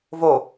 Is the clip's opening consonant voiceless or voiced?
voiced